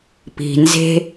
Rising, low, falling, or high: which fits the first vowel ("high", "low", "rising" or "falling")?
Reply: low